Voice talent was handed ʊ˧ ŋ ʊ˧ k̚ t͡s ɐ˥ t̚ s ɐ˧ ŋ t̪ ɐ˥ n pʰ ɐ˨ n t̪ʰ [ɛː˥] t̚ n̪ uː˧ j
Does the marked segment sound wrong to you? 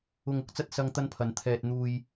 yes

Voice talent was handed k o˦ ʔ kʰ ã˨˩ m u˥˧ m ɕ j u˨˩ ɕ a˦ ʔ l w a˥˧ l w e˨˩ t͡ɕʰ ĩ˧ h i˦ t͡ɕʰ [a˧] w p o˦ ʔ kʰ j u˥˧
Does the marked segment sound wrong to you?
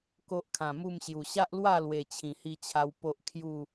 yes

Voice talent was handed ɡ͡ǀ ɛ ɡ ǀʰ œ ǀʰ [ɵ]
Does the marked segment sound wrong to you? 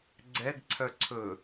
no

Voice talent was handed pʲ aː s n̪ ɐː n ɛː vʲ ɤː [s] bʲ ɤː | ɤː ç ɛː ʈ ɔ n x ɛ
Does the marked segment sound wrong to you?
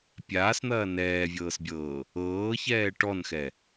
no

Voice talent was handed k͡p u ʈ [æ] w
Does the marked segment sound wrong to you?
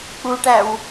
no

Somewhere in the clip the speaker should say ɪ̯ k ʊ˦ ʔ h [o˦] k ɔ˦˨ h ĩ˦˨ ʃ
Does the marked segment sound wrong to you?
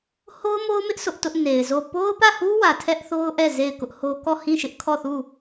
no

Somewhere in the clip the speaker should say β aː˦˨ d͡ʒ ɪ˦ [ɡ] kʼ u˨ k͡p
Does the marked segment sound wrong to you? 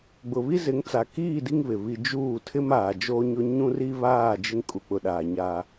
yes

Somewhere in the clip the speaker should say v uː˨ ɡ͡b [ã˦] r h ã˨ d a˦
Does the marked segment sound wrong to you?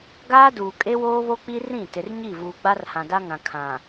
yes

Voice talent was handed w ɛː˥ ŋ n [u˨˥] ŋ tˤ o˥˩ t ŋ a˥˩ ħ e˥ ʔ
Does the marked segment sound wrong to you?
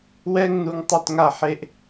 no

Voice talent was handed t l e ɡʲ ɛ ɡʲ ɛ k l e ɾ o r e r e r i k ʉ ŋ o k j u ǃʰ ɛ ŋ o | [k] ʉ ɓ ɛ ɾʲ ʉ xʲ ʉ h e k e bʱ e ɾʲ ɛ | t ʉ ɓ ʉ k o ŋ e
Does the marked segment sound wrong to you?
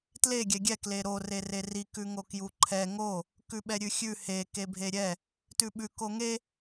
no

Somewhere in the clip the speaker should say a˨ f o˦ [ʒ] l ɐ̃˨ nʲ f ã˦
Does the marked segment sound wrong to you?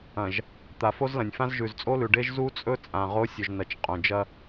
yes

